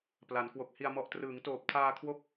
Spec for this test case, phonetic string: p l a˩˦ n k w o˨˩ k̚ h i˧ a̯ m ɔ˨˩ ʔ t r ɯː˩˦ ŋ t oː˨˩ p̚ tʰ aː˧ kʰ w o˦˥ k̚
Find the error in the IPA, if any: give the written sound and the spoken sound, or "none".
none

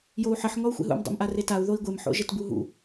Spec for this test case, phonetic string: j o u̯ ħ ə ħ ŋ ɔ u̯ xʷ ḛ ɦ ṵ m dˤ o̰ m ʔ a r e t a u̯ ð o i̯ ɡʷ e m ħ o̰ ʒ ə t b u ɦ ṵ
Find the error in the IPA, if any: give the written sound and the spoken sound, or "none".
none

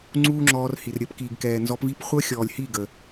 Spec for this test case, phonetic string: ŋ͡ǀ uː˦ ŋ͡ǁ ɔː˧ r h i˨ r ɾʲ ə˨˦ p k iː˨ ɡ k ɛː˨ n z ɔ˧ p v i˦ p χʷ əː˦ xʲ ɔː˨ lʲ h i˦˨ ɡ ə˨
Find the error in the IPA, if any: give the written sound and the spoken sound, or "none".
none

